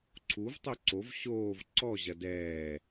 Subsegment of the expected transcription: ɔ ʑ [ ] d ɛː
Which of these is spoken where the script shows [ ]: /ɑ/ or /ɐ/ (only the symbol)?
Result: ɐ